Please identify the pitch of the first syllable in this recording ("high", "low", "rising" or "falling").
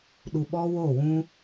low